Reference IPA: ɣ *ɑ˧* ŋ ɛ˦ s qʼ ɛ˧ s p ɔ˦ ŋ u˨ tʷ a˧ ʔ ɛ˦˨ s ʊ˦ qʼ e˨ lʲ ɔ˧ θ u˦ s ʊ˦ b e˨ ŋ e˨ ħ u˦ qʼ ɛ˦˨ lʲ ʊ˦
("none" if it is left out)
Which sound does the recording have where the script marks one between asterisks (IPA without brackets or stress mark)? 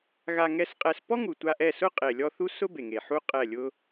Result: a˧